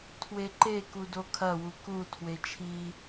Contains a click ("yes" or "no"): yes